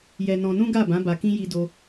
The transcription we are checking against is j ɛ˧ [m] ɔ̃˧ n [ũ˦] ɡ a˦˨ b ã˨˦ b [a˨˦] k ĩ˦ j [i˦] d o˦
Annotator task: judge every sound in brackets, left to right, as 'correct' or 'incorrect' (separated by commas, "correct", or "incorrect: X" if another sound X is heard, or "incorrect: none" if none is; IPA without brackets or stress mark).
incorrect: n, correct, incorrect: a˧, correct